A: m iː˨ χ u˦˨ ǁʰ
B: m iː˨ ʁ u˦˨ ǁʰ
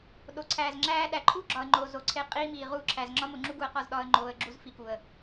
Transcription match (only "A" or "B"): B